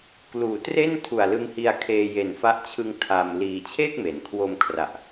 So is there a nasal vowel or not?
no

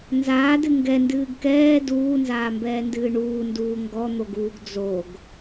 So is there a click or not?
no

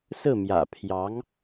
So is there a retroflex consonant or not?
no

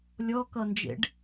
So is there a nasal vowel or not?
no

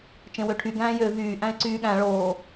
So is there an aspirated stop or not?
yes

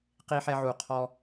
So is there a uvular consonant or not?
yes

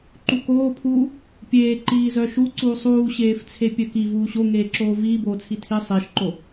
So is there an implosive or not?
no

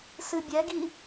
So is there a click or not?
no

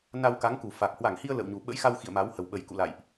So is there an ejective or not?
no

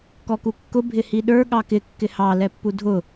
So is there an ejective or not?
no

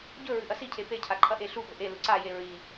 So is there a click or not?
yes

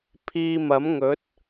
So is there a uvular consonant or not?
no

